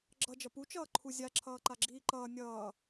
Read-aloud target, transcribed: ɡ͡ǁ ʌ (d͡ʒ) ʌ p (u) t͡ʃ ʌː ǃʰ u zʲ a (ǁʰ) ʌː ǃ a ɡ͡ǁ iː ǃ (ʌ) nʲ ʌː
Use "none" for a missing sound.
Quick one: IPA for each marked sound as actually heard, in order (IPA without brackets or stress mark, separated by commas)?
d͡ʒ, u, ǁʰ, ʌː